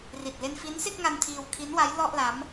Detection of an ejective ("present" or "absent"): absent